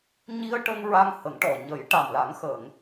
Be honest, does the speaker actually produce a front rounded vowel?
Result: no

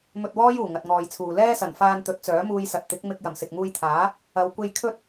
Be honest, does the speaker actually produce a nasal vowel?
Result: no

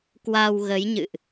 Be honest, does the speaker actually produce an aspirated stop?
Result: no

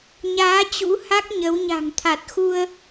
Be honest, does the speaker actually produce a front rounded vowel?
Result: no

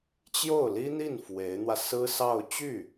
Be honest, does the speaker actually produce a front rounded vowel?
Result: yes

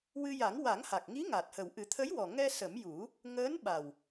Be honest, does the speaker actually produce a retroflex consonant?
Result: no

